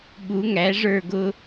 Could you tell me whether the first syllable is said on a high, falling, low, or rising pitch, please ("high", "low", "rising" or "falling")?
rising